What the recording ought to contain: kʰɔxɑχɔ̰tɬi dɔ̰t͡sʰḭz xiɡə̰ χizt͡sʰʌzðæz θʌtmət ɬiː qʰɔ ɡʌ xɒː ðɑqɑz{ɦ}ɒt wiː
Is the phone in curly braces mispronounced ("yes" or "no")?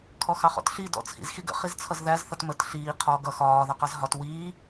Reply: no